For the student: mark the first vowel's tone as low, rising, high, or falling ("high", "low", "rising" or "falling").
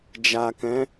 low